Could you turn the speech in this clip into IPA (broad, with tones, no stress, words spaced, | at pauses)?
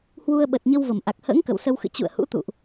hwu˧ə̯ɓə˨˩t̚ɲə˧wvə˧˩m ʔa˨˩k̚hə̰ː˧˥ŋ kə̰˧˨wsə˧wxɨ̰˧˨ t͡ɕṵ˧˨ə̯hṵ˧˥ t̪ṵ˧˨ʔ